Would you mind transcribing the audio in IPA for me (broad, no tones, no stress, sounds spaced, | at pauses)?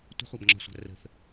tʷ ə̤ χʷ a b ŋ͡ǁ ɔ̤ sʷ a̤ r ə̤ θ